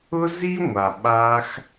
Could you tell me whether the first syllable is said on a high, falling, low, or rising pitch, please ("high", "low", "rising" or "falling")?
high